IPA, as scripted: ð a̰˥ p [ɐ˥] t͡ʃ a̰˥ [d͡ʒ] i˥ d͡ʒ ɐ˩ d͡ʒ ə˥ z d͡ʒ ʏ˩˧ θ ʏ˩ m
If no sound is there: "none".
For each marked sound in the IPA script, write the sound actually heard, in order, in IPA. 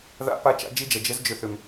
a˥, d͡ʒ

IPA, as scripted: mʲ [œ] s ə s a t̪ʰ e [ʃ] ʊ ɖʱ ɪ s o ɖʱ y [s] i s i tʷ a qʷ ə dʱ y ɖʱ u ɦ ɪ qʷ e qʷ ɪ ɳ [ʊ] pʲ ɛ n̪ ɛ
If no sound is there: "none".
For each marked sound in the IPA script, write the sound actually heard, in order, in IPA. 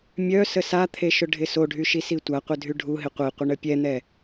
œ, ʃ, ʃ, ə

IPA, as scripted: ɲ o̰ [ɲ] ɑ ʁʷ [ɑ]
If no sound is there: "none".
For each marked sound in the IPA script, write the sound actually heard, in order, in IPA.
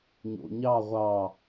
ɲ, ɑ

